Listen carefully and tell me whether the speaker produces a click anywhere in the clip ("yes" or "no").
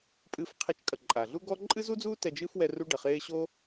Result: yes